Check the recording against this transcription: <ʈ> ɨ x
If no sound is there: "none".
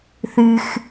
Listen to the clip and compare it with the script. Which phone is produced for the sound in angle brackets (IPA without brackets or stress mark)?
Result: θ